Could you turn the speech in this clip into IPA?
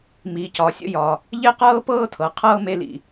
m i˩ c ɒ˩ sʲ ə̰˧ j ɒ˩ | ʎ e˥ q ɤː˥ p ɤː˥ tʰ ɤ˩ qʰ ɤː˥ m e˧ l ḭ˩

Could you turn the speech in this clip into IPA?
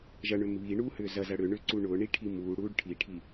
ʒ ɐ ɳ ʏ m β i ɳ uː h ʏː z ɐ z ɐ ɽ ʏ ɳ ʏ ǀ u ɳ ʊː ɳ i ʈʰ i m uː ɽ uː ɖ ʈʰ i ʈʰ i

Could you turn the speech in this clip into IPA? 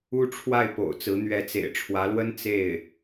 u˥ ʈ͡ʂʰ w a˥˩ ɪ̯ p o̰˨˩ ʊ̯ t͡s ɹ̩˧˥ n̪ ɥ ɛ˧˥ t͡s ḛ˨˩ ɪ̯ ʈ͡ʂʰ w ä˧˥ l w ə˥ n t͡s e˥˩ ɪ̯

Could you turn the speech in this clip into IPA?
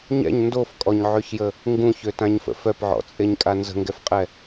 ɲ ɛ̰ ɲ n d o f kʼ ɔ ɲ ʕ ø ç j ə | ŋ ɡ ũ ç ø t ã ɲ f ə̰ f œ p ʕ ɔ̰ t͡sʼ e ɲ kʼ a n z ə̤ ŋ ɡ ɛ f qʼ ɛ

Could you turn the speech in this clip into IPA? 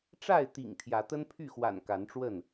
ʈ͡ʂ a˥˨ ɪ̯ t̪ ḭ˨˩ ŋ t̪ʰ j ä˨˦ t̪ ə˦ n pʰ y˥˨ x w a̰˨˩ n k a˨˦ n ʈ͡ʂ w ə˥˨ n

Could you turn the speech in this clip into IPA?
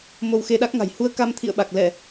m o˧ w x e˧ ɗ a˦˥ k̚ ŋ a̤˨˩ j h u˧ ə̯ k a˧ m t̪ʰ ḭ˧˨ ə̯ ɓ a˨˩ k̚ l ɛ˧˩˨

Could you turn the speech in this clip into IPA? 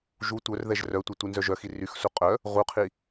ʒ u tʷ œ r ð ɛ ʒ r œ tʷ œ tʷ i n z œ ʒ œ x i r y x s u qʼ œ | ʁ u qʰ i

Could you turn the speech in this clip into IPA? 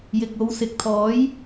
j ɪ˨ k̚ o˨˧ w s ɪ˨˥ k̚ t̪ʰ ɔː˨˥ j

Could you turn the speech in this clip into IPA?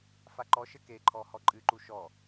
f a ǃ ɔ ʃ ɘ k e ǃʰ ɔ h ɔ ǃʼ ɨ ǃ u ʃ ɔ

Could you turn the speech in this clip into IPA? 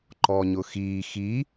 ǃ ɔ ɲ ʊ x iː x i

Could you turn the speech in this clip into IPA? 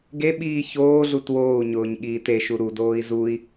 ɡ e ɓ iː ç oː ɮ u t w oː u̯ ɲ ʊː ɲ ɠ iː t e ʃ u ɾ u d oː i̯ z u i̯

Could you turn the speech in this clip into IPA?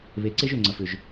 β e˨ ǀ e˦ ʒ ʏ˦˨ ŋ͡ǀ ɐ˨ f ʏ˨ ʒ

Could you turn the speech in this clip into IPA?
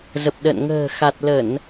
z ə˨˩ p̚ ɗ ə̰˧˨ n ŋ ə̤ː˨˩ x a˨˩ t̚ l ə˧˩˨ n

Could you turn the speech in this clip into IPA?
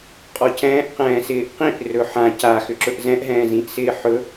qʼ ɔ c ɛ̃ː ʔ q ɛ̃ː s ɪː ʔ q ĩ ʔ r ɵ ħ ã c a x ʏ ǁ ɵ ʔ z ɛ̃ ʔ ɦ ɛ̃ː z ĩ ʔ s ɪː ħ ɵ

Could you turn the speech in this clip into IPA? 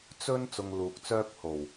t͡s ɵ˥ n t͡s ʊ˧ ŋ l uː˨ k̚ t͡s œː˥ p̚ h o˨˩ w

